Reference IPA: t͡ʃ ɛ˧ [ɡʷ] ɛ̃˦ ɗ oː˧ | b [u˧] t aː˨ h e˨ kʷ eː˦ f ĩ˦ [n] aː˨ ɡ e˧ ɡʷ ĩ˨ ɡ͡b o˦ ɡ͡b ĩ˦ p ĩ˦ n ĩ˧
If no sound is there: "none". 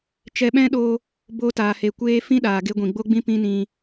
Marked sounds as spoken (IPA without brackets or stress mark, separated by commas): ɓ, o˧, ɗ